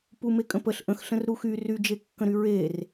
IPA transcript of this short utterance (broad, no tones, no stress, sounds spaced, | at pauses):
p u m e kʼ ə̃ p ə ɬ ʔ ə̃ x ɬ ə̃ r ɾ u x y r y d͡ʒ e kː ə̃ ɾ y ɹ e r